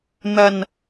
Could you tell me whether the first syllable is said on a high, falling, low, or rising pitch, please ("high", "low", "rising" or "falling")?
low